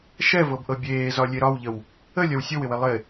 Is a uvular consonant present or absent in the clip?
absent